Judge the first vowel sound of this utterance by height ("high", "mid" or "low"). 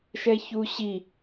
mid